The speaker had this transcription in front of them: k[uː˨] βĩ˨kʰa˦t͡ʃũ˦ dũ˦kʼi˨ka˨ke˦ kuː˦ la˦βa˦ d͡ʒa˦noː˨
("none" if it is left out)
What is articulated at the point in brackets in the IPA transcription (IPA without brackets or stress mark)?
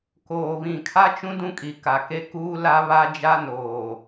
oː˨